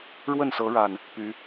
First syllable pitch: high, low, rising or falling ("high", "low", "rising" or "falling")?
falling